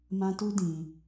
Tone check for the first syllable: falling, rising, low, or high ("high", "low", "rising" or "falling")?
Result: high